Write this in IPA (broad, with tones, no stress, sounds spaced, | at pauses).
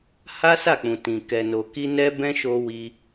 h a˦ s a˦˨ k͡p ũ˨ t ĩ˨ k ɛ˨ n o˨ k i˧ n ɛ˦ b ɛ̃˦ ʃ o˧ w i˧